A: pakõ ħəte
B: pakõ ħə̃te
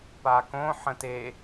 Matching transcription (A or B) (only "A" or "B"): B